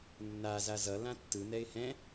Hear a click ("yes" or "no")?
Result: no